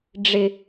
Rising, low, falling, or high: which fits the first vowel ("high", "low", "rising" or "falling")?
low